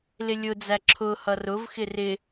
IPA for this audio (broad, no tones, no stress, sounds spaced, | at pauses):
l ɪ lʲ ʊ d͡z æ ǁʰ ʊ h ʌ r ʊ v x ɪ r ɪ